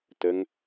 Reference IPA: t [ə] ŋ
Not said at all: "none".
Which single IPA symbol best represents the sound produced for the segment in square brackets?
ə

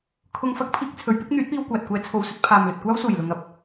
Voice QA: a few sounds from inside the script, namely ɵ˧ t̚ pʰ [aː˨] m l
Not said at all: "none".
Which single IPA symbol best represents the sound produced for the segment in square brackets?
aː˨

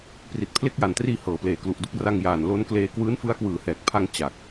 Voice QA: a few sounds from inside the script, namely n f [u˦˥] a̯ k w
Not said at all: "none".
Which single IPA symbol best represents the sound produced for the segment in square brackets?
ɯ˦˥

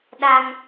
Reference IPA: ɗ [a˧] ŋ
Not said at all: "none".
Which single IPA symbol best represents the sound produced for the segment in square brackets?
a˧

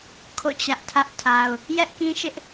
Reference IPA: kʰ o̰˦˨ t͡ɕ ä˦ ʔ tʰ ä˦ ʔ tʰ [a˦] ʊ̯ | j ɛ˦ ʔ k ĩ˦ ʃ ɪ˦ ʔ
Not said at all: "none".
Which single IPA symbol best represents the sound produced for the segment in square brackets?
a˦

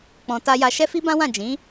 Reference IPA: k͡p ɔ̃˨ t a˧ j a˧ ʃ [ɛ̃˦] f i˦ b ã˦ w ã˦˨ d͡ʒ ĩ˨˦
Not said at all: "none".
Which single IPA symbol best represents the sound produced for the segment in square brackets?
ɛ˦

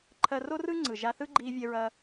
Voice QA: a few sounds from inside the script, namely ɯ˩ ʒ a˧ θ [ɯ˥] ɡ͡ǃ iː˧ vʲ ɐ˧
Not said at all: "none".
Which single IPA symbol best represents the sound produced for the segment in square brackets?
ɯ˥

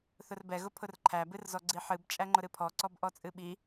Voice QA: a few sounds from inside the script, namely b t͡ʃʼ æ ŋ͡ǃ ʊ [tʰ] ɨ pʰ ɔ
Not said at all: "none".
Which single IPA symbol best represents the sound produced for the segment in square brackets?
ɾ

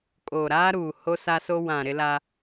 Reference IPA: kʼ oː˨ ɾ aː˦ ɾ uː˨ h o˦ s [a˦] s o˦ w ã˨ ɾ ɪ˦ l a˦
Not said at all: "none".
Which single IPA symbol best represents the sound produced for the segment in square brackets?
a˦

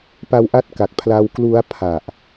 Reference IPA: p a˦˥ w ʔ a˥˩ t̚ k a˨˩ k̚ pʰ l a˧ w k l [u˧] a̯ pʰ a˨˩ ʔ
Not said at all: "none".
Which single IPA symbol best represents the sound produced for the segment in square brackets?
u˦˥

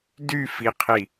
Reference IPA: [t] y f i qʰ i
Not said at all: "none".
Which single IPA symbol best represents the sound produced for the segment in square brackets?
d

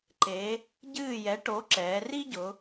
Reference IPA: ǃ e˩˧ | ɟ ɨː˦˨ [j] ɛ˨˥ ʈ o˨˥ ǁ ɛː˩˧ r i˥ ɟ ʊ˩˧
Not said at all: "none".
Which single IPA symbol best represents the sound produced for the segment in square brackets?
j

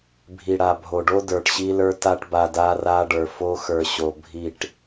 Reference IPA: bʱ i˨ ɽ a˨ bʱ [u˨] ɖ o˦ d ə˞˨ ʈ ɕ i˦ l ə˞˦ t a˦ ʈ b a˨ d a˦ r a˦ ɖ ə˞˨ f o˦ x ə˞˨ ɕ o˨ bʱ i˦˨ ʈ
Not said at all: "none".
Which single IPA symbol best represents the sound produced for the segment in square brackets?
o˨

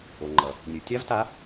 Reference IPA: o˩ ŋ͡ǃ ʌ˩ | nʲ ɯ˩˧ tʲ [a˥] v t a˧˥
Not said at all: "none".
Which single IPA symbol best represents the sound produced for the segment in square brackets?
a˥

